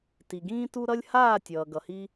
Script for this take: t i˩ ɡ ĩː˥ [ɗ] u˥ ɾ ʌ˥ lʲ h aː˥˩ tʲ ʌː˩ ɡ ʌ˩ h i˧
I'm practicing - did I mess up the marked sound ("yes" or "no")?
yes